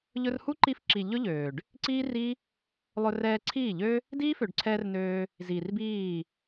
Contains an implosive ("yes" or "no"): no